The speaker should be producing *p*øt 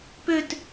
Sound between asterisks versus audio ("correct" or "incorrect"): correct